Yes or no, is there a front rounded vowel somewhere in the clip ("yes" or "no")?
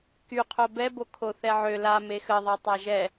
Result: yes